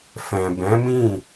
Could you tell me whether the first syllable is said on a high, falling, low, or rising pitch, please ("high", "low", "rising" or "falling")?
low